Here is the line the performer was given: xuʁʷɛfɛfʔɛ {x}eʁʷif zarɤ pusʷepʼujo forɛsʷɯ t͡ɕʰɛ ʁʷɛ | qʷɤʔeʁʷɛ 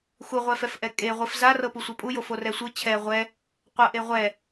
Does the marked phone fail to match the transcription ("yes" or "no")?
yes